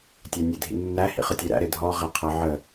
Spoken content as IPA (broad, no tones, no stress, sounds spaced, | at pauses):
tʲ æ nʲ e dʱ ḭ nː æ h ḭ χ ə tʲ e ɾ æ̰ ɾ e dʱ ɔ ʁ æ qʰ ʌ ʕ ə